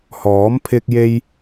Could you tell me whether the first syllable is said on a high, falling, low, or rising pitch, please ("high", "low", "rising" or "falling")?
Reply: rising